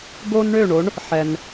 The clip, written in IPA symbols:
ɡ o˥ n ɳ ø˥˩ ɳ o˩˥ ɳ | ħ ɛ˩ n

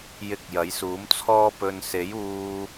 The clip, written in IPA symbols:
j ɪ˧ k̚ j ɐ˨˥ j s uː˨˥ m t͡sʰ ɔː˧ p ɵ˨ n s e˨˥ j uː˧

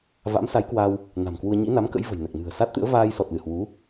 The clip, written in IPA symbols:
v a̰˧˥ m s a˨˦ j k w a˧ w | n a̤˨˩ m k w u˧ ə̯ ɲ ḭ˧˥ n a˨˦ m k ə̰˧˥ j v ə̤˨˩ j n ɛ˨˩ k̚ n ɨ̤˨˩ ə̯ s a˦˥ t̚ t̪ ɨ̰˧˥ ə̯ v aː˧ j s ɔ˨˩ t̚ l ɨ˧˩ h w u˨˦

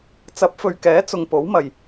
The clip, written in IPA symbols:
t͡s ɐ˨˥ p̚ f ɵ˨ ɥ k ɛː˨˥ t͡s ʊ˨ ŋ p o˨˥ w m ɐ˨ j

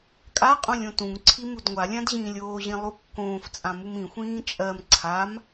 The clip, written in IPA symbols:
kʼ a qʼ õ lʲ õ t ũ ŋ ǀʰ i m u d ŋʷ a lʲ ã d ʑ ĩː lʲ oː ʑ ĩ lˠ u kː õː f t͡sʼ ã m u m ĩ xʷ ĩː t͡ʃʼ ɜ m ǀʰ a m

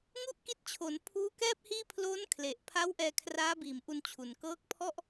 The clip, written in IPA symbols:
ŋ u˥˩ ʔ k i˦˥ t̚ t͡ɕʰ o˩˦ n pʰ uː˦˥ k ɛː˥˩ p̚ h iː˥˩ pʰ l oː˦˥ n kʰ l e˨˩ ʔ pʰ a˦˥ w ʔ ɛː˧ kʰ r aː˦˥ b iː˨˩ m ʔ u˧ n t͡ɕʰ u˨˩ n k ɤː˦˥ k̚ pʰ ɔ˥˩ ʔ

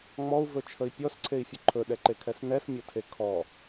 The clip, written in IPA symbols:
ŋ͡m ɔ u̯ v ɵ t͡ʃʰ ə i̯ pʲ ɔ s ǀʰ e i̯ fʲ ə ǃʰ ɵ ɗ ɛ ǃ e kʰ ɛ s n ɛ s mʲ o tʰ e kʰ ɔ

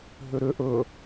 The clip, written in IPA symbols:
ɦ ʏ ɾ ʏ ʔ ɵ

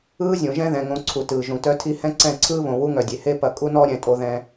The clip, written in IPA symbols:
ɯː˦ zʲ õ˨ ʒ ɛ̃˦ ð ɛ̃˨ ŋ õ˨˦ ǀʰ u˨ t ɯː˨ ʒ ũ˨ t œ˦ tʰ i˦ h ɛ̃˦ ǀ ɛ̃˦˨ ǀʰ ɯː˦ β õ˨ w u˦ ŋ œ˨ dʲ e˨ h e˦ p ɐ˨ kʼ u˦ n ɔ˦ ɾʲ ɛ̃˨ tʼ o˦ ð ɛ̃˦

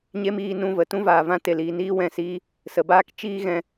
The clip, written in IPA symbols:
ɲ e˦ m iː˧ n ũ˧ v ə˨ t ũ˦ v aː˨ v ã˦ t e˨ l iː˨ n iː˦ w ɛ̃˨ s iː˦ | s ə˨ b aː˦ k t͡ʃ iː˦ ɣ ɛ̃˧

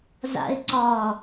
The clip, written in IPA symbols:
z a̰ ɪ̯ ǀ ɒ

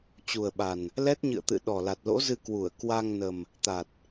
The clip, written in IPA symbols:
t͡ɕ u˨˩ ə̯ ɓ a˨˩ n | l ɛ˦˥ t̚ ɲ ɨ̰˧˨ ə̯ t̪ ɨ̰˧˨ ɗ ɔ˨˩ l a˨˩ t̚ l o̰˧˥ z ɨ˧ k w u˧˩ ə̯ k w a˧ ŋ n ə˨˩ m | t̪ a˨˩ t̚

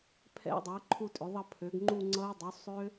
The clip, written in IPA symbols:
pʰ ɛ̰˦˥ dˤ ø˩˥ ə̯ ǃʰ u˥˧ tʼ ʏ˩˥ ðˤ ʌ˥˧ pʰ ø˩˥ ɡ ŋ͡ǃ u˥˧ ŋ͡ǀ ʌ˦˥ ɪ̯ dˤ o˩˥ sˤ ø˦˥

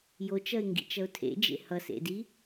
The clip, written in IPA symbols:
j o t͡ʃ ʌ ɪ̯ ŋ ɡ ḭ t͡ʃ ʌ ʊ̯ tʰ ḛ d͡ʒ ḛ h ʌ s ḛ d i

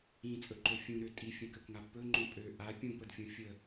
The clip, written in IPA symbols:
ĩ t͡sʼ ɵ ǃ ɵ fʲ ũ ɾ ø tʼ i fʲ ə̃ k ə k ŋ a b p ɵ ŋ͡ǃ õ pʼ ø ʔ a pʲ ũ p ə d fʲ õ fʲ ə

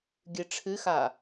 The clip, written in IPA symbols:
ɡʲ ɨ ʈ͡ʂʰ ɨ x a

